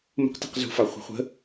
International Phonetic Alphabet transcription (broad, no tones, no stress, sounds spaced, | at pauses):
m ə̤ q t i̤ q z ṳ f ɑ χʷ ə̤ χʷ ə̤